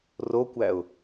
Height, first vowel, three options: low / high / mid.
mid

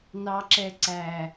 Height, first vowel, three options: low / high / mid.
low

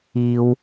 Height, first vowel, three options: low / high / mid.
high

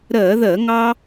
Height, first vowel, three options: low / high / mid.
mid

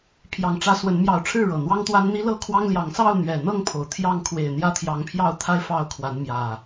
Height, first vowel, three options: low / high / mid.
low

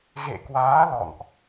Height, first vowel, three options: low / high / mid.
mid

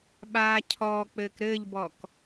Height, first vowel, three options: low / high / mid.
low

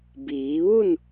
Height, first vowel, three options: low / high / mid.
high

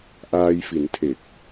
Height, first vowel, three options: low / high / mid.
low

